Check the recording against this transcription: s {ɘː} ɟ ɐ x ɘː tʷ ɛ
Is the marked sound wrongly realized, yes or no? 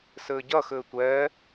no